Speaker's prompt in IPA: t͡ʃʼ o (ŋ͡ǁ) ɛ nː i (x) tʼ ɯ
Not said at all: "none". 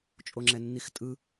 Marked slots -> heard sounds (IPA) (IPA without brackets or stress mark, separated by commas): ŋ͡ǁ, x